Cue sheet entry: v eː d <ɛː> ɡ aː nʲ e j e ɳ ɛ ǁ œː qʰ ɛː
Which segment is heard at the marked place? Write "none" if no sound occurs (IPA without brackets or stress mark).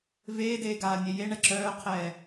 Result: eː